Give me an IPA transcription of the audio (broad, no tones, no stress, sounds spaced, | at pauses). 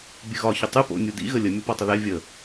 bʲ ɨ ɣ ɒ ç ʏ tˤ ɨ p o̰ nʲ u d ḭ ɣ ə lʲ ə mʲ o p ɔ tˤ ə ð ɛ vʲ ə